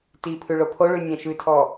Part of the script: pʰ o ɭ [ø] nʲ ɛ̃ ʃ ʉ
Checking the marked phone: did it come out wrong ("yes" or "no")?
yes